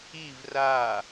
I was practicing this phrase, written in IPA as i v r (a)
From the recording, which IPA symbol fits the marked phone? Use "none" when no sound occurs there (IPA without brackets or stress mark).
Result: a